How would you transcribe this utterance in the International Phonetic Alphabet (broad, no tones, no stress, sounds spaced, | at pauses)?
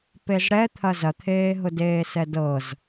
p e z ɽ ɛ t̪ʰ ɐ z ɐ t̪ʰ eː ɦ ʊ d eː s ɛ d ɤ z